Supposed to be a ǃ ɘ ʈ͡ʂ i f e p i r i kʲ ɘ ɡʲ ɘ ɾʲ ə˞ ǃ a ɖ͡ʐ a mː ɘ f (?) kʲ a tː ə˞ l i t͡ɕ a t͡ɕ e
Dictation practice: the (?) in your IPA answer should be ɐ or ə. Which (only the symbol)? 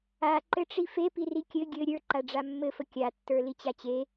ə